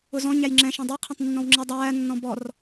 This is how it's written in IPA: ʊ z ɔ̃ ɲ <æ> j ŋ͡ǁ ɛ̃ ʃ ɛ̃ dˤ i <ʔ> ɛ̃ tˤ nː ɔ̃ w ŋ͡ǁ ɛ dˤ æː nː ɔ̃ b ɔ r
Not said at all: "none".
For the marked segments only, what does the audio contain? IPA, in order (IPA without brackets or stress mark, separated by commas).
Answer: æ, qʰ